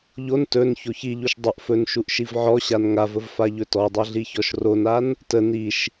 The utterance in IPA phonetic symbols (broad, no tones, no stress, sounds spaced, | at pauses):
ʎ o n t ɵ n ç o ç i ʎ u ʃ dˤ ə ʔ f ɵ n ʃ u ʔ ʃ i v ʕ ɔ ɕ a n ŋ a v ə v f a ʎ ɵ t ɔ dˤ a ɮ i ç ɔ ʃ r o n a n | t ə n i ʃ